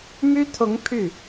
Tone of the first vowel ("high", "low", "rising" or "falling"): high